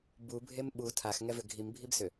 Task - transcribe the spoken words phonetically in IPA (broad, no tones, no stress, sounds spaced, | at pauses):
b u bʱ e m ɓ u tʰ a x ŋ ɛ v ʏ ɡʱ i m bʱ i b s ʏ